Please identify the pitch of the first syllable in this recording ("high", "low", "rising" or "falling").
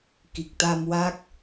low